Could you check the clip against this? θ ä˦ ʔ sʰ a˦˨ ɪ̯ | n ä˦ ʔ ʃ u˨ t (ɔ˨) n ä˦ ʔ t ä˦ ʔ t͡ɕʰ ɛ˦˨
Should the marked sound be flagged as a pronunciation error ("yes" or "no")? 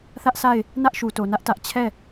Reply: yes